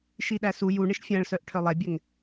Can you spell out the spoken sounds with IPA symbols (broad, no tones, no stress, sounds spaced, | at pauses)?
ʃ i ɗ æ s u j u ɳ e ʃ fʲ æ̃ ɭ s œ ʔ ʈʰ œ lˠ ɛ bʲ ɛ ŋ